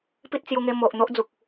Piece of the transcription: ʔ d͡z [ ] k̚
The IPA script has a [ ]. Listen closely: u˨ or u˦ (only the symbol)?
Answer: u˨